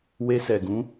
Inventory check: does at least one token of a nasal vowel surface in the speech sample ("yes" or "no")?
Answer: yes